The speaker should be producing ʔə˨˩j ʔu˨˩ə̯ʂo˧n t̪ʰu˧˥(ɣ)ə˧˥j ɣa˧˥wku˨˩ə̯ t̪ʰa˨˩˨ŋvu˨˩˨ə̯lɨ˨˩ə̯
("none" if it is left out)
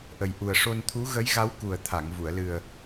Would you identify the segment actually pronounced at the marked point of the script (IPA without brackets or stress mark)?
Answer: ɣ